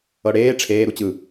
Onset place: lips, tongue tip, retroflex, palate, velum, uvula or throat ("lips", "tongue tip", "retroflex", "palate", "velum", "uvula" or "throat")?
retroflex